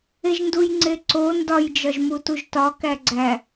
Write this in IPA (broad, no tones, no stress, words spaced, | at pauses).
eʒndujŋ͡ǀeǀo ndɒjd͡ʒɒʒmutuʒ tɒkæɡ͡ǀæ